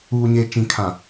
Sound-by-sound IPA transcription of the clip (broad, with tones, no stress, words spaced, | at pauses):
uː˨ɲe˨ t͡ʃĩ˨kʰã˨